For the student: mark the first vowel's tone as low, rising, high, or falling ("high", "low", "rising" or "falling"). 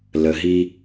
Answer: low